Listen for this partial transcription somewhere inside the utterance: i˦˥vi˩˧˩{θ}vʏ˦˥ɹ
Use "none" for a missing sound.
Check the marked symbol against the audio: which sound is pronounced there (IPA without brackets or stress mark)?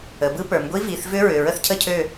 θ